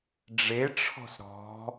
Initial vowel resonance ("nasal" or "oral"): oral